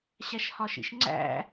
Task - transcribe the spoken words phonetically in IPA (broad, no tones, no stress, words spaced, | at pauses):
ɕæʃhɒʃḭʃŋ͡ǀæ̰